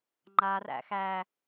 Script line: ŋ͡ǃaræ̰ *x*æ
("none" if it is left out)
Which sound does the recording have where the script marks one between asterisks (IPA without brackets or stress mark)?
x